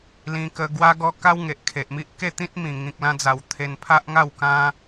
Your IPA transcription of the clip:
lĩ˧kə˧ ɡwa˦ɡɔ˦ ka˦wŋe˨ʔkʰe˨ʔmi˦ʔ ke˥˧t̪ĩ˦t̚mĩ˨˩ ŋĩ˨k̚lã˧d͡za˨˩w t̪ʰe˧npʰa˦ʔŋa˥˧w kã˧

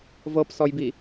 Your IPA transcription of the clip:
vɤpsɔjbi

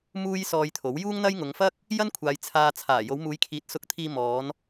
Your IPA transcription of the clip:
muː˥jsɔː˧jt̪ʰo˨˥w juː˥ŋn̪ɐ˥jŋʊ˨˧ŋ fɐ˥k̚ | jɐ˥nkʷʰaː˨j t͡sʰaː˨ t͡sʰaː˨˩ jo˨˧wmuː˨˧jkʰiː˨˥t̚ sʊ˧k̚t̪ʰiː˧ mɔː˨˧n

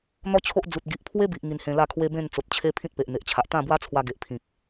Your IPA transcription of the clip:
n̪ɔ˦t͡ɕʰo˦ʔd͡zu˨t̚ ɡi˨ʔpʰwe˦bi˨ʔ ŋi˧nhẽ˧la˥˧kʰwe˦ bẽ˥˧nt͡so˨t̚t͡ɕʰe˦ pʰĩ˦t̚pe˨ʔn̪e˨ʔt͡ɕʰa˨ʔ t̪ã˥˧bwa˦t͡sʰwa˧ ɡe˨ʔpʰĩ˨k̚

